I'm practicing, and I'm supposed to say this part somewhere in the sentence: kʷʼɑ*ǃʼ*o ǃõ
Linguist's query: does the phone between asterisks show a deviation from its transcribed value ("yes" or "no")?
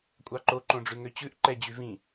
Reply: yes